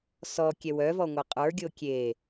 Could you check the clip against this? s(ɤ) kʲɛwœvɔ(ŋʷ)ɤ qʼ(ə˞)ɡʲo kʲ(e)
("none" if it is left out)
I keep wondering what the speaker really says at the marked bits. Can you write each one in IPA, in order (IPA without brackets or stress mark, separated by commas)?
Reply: ɔ, ŋʷ, ə˞, e